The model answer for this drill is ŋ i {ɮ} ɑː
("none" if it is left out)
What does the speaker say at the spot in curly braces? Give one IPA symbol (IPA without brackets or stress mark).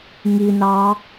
n